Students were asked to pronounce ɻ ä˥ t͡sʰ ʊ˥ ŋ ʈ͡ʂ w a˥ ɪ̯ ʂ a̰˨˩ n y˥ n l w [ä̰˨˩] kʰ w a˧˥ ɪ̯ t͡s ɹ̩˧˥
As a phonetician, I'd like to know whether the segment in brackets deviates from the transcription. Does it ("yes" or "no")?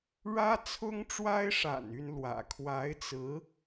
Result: no